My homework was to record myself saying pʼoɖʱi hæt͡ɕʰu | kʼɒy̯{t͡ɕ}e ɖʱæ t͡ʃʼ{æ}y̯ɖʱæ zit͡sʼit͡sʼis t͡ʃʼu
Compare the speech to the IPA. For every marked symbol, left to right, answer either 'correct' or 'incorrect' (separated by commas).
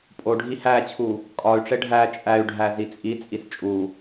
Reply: incorrect, correct